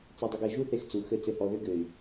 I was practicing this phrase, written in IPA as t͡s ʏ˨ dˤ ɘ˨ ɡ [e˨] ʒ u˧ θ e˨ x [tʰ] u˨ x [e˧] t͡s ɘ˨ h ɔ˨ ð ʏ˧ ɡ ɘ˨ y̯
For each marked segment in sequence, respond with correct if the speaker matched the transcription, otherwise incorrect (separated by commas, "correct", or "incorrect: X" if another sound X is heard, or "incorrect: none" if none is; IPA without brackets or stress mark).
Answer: correct, incorrect: t͡s, incorrect: ɘ˧